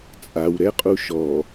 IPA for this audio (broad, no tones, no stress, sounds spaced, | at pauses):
t͡sʼ a w ɾ ɛ qʼ u ʃ ɔ